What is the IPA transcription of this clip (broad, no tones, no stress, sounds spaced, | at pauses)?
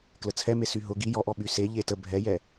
k l ə t͡sʰ ɛ m e s y ɦ ʊ ɡ i j ɔ ʔ ɔ ɓ y s e ʎ e t ə bʱ ɛ j ɛ